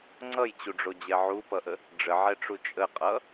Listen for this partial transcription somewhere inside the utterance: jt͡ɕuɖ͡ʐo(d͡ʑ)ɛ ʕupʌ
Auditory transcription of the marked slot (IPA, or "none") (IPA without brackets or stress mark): d͡ʑ